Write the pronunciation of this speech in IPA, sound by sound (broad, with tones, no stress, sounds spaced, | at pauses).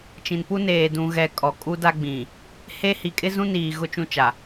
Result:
t͡ʃ ĩ˨ n p u˦ n eː˨ d ũ˨ ɣ ɛ˨ kʼ ɔ˨ kʼ u˦ d a˦ ɡ͡b ĩ˨ | h e˦ h i˨ kʼ ɪ˦ z ũ˦ n iː˨ ɣ ʊ˦ t͡ʃ ũ˦ t͡ʃ a˨